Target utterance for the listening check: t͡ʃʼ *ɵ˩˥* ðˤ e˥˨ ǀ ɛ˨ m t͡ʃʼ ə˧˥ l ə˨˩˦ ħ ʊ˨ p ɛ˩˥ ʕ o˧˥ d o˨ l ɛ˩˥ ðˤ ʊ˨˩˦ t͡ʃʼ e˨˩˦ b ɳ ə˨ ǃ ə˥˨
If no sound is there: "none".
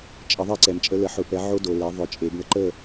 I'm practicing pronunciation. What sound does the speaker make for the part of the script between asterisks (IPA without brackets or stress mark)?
ə˩˥